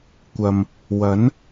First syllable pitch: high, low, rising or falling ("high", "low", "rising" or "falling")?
low